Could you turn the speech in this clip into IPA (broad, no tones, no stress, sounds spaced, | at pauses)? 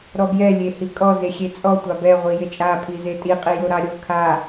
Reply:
ɾ ɔ b j ɛ lʲ e h i kʼ ɔ z e xʲ e t͡sʼ ɔ tʷ ɑ b ɛ ʁʷ i j e t͡ʃʼ a pʰ i z e tʼ i qʼ i j o ɾ ɑ ɾʲ o kʰ a